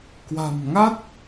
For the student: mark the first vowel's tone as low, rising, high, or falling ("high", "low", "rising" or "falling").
low